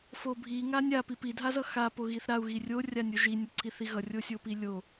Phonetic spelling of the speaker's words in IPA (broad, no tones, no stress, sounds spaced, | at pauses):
f o bʱ i ŋ a nʲ a p i p i dʱ a z ʌ x a p o ɣ i θ ɾ a u̯ ɣ i rʲ o rʲ a nʲ o ʒ i nʲ ʌ ǀ i θ i ɣ ʌ rʲ o sʲ o p i lʲ o